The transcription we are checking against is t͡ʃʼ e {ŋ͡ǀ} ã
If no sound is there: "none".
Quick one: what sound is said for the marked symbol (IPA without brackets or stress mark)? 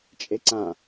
ǀ